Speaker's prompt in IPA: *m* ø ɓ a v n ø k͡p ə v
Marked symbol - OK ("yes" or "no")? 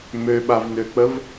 yes